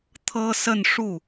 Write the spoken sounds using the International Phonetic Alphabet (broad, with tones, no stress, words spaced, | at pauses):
t̪ʰɤ˥sə˥˧nʂu˥˩